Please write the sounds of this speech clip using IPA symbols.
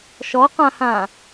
ʃ ɔ q ã h ã

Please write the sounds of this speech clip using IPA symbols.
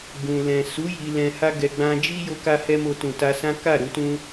ɡ ũ˨ l ɛ̃˨ s u˨˦ j i˧ l ɛ̃˧ h a˧ ɡ ɛ˨ ɡ͡b ã˧ d͡ʒ i˦ j o˦ k a˦ h ɛ˦ m o˧ t ũ˨ t a˧ s ã˦ k a˦˨ ɾ u˧ t ũ˦

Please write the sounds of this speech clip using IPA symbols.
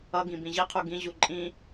ʌ ɡ ĩ b ĩ ʑ i qʰ u ɡ ĩ ʑ u ǃʼ ĩ

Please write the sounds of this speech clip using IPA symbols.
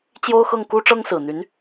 t͡ɕ j o˥ ʊ̯ x ɤ˥˩ ŋ k u˥ ʈ͡ʂ ɤ˥ ŋ s ɹ̩˨˩ n̪ y˧˥ n

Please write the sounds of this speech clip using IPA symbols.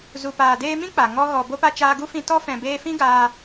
z u˨ p aː˨ d eː˧ m ĩ˦ k͡p a˨ ŋ ɔ˧ ɣ ɔ˨ b o˧ p a˧ t͡ʃ aː˧ ɡ u˦ f ĩ˧ t ɔ˧ f ɛ̃˨ b eː˧ f ĩ˦ ɡ aː˧

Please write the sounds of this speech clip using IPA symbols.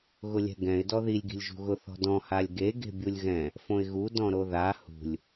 ɣ ʊ lʲ ɛ̤ ɡ ɛ̃ ɪ̯ d ɔ ð i lʲ ɡ i̤ lʲ ʒ ṳ ɣ ʊ θ ɔ̤ d ɔ̃ h a lʲ ɡ e ɡ e̤ bʲ u lʲ ɣ ɛ̃ | f õ ɪ̯ ɣ u d ɔ̃ ɾ o ð a h ṳ lʲ

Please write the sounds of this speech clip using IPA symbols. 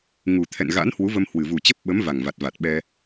ŋ u˨˩ t̪ʰ ɛ̰˧˨ n ɣ a̰˧˥ n h w u˨˦ v ə˧ m h w ɨ˨˩ v u˨˩ t͡ɕ ə˦˥ p̚ ɓ ə˨˦ m v a˨˩ ŋ v a˨˩ t̚ v a˨˩ t̚ ɓ ɛ˧

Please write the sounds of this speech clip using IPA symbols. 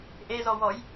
ʔ e z ɔ w ɔ j

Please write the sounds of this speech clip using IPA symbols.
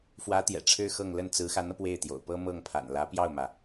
f w ä˧˥ t̪ j ɛ̰˨˩ ʈ͡ʂʰ ɻ̩˥ x ɤ˥˧ ŋ l ə˥˩ n t͡s ɹ̩˧˥ x a˧˥ n ɤ˧ p w e˥˩ ɪ̯ t̪ j o̰˨˩ ʊ̯ p ɤ˥ m ɤ˥˩ ŋ pʰ a̰˨˩ n l ä˧˥ p j ɑ˥˩ ʊ̯ m ä˩

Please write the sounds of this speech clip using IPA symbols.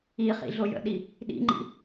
i χ ḭ ɮ o j ə̰ ɗ i | ɗ ḭ ŋ͡ǃ ḭ

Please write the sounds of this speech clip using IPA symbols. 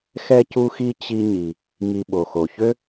x ɛ˥ c u˥ x i˥ t͡ɕ i˥ ɲ i˩ | ŋ i˧ ɓ o˩ x o˩ ç ø˥

